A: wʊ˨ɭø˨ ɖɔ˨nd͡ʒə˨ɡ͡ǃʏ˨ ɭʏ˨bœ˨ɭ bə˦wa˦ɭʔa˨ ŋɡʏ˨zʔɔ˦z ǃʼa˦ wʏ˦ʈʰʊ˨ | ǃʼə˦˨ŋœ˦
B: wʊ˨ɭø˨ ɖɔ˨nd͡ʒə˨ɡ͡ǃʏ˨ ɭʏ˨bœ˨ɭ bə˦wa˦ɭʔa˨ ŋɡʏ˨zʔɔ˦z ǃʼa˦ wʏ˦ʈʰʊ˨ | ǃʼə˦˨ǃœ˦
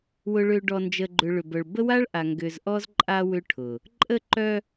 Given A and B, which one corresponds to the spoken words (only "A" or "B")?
B